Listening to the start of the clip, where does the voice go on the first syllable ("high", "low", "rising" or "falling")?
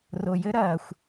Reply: low